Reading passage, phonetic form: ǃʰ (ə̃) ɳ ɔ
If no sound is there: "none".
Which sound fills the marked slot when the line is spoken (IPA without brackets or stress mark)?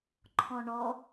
ɔ̃